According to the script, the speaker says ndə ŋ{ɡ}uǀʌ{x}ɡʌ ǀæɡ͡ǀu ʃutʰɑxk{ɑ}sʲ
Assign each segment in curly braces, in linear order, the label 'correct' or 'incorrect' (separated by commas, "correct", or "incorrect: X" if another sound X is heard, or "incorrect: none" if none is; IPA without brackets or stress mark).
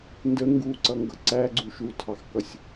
correct, incorrect: ŋ, incorrect: ʌ